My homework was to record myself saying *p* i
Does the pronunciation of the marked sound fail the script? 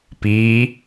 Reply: no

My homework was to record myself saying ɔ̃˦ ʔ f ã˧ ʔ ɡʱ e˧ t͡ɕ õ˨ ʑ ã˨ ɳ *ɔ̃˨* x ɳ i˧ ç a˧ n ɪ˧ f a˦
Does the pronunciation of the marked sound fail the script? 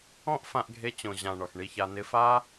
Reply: yes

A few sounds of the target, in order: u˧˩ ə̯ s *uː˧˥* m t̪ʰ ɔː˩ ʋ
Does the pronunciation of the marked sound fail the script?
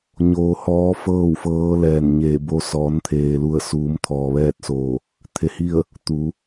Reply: yes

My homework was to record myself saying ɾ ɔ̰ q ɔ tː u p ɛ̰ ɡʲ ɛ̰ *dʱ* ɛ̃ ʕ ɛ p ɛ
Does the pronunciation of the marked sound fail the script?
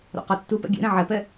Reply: yes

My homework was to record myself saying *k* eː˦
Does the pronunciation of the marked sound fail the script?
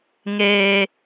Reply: yes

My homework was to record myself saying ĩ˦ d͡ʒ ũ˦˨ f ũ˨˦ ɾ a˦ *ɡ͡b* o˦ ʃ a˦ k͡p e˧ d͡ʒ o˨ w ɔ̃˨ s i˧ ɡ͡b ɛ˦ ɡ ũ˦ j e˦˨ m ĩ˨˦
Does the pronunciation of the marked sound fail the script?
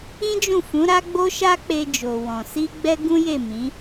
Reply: no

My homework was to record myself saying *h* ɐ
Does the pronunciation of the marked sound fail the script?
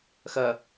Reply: yes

